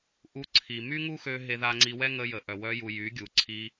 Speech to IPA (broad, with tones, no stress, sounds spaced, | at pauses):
ʔ u˧ ǀʰ i˨ m y˦ ŋ u˦ x ø˧ ɦ e˧ ð a˧ ŋ͡ǀ i˧ w ɛ˦ ŋ ə˧ j ə˨ ʔ œ˨ w œ˧ j u˨ j y˨˦ ɡʲ u˨ ǀʰ i˧